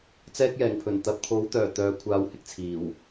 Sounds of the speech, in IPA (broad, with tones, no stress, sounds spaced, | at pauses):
t͡s ɛː˧ k̚ j ɛː˨˩ ŋ pʰ ɵ˨˩ n t̪ ɐ˨ p̚ t̪ʰ o˨˥ w t̪ œː˨˩ t̪ œː˨˧ kʷʰ aː˨˧ w h ɪ˧ k̚ t͡sʰ iː˨˩ w